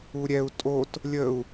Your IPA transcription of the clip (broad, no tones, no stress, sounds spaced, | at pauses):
u ɾʲ ɛ u̯ tʼ o t | lʲ ə u̯